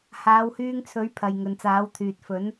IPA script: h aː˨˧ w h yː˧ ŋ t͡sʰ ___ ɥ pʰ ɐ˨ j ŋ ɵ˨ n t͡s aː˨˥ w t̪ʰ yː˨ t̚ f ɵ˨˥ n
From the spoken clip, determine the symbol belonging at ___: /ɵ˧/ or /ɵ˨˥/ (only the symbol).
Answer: ɵ˨˥